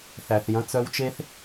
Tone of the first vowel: low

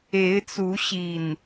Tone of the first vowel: rising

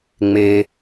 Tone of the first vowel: low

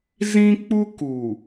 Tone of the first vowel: high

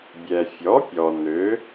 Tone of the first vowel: low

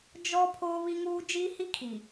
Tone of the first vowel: high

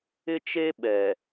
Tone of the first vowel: high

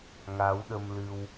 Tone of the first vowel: rising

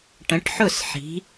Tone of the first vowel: rising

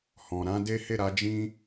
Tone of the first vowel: low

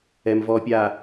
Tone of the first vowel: low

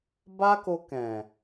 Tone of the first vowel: high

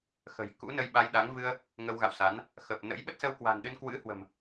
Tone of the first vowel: low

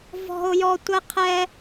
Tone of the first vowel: high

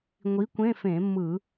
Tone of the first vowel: rising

